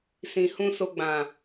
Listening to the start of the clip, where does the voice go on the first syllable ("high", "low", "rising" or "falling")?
low